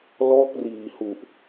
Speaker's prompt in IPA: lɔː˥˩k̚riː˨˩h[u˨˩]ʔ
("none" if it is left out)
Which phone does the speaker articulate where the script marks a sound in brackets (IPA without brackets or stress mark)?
u˨˩